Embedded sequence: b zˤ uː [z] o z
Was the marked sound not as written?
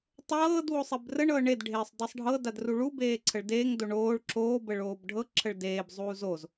no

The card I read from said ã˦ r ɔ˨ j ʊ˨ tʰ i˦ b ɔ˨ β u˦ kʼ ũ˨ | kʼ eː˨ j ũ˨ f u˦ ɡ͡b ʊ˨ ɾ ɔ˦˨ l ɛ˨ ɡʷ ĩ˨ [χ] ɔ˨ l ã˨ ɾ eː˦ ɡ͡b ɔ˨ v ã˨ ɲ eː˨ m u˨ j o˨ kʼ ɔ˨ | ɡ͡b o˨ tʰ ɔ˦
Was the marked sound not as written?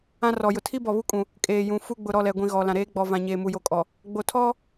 yes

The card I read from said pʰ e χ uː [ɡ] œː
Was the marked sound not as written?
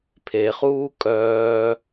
yes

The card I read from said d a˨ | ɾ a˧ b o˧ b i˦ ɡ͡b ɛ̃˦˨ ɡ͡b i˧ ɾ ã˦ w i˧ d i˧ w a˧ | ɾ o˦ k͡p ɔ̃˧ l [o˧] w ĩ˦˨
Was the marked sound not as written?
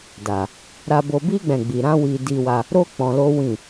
yes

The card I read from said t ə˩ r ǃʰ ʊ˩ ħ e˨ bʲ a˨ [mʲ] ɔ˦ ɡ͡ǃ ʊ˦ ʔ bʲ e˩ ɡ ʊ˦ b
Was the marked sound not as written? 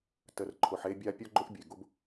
yes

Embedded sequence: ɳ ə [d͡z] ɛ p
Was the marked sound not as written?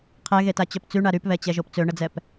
no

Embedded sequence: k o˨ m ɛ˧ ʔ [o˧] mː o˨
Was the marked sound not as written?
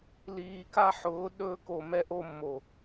no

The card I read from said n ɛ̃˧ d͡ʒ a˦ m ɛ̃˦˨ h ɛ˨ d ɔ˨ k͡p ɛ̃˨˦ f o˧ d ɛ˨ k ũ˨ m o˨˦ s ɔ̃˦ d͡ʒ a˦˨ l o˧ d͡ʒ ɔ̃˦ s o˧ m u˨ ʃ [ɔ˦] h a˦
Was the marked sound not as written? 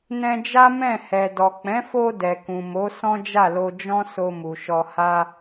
yes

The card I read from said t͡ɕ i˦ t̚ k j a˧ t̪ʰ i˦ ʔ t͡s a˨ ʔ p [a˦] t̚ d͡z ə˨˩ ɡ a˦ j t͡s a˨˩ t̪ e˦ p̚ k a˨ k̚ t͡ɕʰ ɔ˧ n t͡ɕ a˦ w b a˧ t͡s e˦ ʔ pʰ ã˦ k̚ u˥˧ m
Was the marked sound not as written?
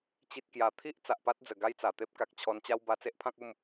no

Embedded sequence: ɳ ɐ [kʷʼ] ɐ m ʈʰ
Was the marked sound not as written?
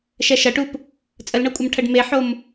no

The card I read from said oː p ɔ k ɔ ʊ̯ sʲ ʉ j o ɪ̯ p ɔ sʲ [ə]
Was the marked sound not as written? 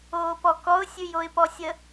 no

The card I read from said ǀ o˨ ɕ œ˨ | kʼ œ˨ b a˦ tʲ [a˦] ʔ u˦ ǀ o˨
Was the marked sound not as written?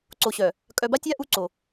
no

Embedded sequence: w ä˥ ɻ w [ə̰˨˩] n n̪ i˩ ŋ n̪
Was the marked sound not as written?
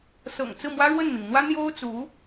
yes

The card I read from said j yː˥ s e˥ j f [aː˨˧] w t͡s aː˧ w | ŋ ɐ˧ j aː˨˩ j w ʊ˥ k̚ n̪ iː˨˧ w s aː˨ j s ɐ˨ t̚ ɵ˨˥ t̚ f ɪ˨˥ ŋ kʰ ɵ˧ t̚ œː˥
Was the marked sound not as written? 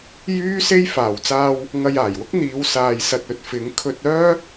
yes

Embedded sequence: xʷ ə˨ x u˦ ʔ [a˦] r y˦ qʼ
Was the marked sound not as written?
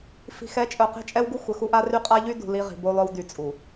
no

